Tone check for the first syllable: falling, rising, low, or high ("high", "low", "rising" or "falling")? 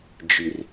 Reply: low